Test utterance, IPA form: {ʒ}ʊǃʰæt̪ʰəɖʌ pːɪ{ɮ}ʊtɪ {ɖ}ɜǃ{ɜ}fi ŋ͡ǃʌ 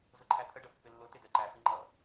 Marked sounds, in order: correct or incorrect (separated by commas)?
incorrect, incorrect, incorrect, incorrect